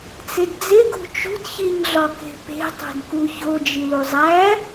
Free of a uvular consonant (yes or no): yes